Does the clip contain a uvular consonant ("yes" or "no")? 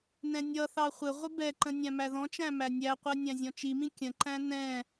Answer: yes